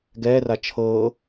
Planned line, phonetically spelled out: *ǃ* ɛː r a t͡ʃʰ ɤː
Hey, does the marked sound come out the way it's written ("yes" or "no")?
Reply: no